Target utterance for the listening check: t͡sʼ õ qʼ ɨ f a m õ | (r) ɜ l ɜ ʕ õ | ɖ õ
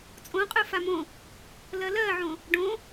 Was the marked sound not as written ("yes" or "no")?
yes